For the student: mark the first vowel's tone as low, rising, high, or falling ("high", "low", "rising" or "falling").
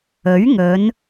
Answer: rising